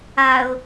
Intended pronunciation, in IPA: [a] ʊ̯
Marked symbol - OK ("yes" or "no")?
yes